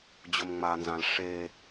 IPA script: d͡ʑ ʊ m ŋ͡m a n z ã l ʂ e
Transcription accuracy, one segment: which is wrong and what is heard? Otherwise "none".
none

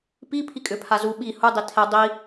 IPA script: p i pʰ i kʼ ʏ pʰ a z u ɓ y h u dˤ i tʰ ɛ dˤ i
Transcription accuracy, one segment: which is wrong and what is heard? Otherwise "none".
y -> i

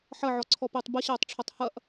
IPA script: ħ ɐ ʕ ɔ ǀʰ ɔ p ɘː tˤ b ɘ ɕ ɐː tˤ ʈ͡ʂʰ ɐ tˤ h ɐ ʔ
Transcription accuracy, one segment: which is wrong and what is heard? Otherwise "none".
none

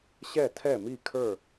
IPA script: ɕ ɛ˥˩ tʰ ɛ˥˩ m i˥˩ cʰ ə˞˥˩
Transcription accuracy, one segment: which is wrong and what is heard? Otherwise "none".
cʰ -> kʰ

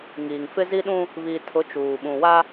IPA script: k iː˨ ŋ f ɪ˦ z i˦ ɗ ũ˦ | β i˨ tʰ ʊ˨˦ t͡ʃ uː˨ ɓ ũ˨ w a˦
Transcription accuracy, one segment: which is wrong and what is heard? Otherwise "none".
k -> ŋ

